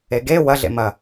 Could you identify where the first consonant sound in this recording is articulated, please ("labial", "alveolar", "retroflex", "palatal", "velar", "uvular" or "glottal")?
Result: velar